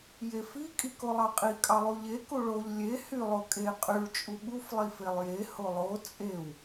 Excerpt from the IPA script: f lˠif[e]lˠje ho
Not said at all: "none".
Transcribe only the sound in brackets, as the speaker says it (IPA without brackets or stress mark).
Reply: e